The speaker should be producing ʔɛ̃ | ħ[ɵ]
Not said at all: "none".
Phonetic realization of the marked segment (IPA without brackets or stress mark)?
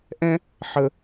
ə